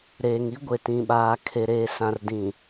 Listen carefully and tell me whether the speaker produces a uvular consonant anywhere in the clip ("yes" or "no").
no